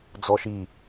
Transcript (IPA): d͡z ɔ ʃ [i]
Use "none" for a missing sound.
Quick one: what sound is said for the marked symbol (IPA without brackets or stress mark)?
i